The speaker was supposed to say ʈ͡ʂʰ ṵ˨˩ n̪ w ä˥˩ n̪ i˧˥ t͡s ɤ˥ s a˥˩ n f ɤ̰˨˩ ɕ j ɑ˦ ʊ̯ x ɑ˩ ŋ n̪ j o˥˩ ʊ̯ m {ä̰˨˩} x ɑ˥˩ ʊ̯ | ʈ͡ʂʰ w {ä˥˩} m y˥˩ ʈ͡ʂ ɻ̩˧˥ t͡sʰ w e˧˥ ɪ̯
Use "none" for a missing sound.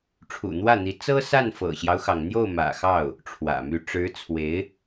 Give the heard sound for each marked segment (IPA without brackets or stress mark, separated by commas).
ä̰˨˩, ä̰˨˩